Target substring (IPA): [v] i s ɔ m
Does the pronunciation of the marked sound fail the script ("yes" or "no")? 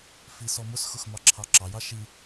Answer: yes